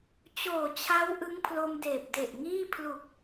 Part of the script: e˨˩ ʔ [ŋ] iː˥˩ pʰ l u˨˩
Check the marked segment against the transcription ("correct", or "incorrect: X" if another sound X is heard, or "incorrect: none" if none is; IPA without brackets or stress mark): correct